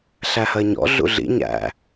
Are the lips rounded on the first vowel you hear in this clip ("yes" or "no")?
no